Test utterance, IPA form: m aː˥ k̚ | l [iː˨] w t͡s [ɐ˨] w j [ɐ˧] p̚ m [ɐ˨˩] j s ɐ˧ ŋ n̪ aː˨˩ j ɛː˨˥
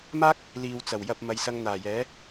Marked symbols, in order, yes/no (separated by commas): yes, no, yes, no